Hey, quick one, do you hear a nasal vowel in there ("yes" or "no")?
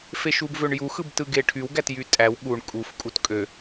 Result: no